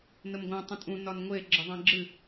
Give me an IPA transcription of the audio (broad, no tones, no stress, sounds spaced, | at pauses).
n ə m ɡʷ ã tˤ ə̃ tʼ ũ n ɒ n ŋʷ e ɡ͡ǁ ə ðˤ ẽ ɡ͡ǁ ɨ